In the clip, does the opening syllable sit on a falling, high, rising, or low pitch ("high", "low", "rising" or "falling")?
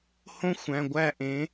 high